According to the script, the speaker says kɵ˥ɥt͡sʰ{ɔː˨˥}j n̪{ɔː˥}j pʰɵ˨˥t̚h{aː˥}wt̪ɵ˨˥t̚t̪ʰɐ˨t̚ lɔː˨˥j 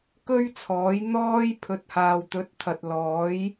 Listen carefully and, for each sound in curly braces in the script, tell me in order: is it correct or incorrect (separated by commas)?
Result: correct, correct, incorrect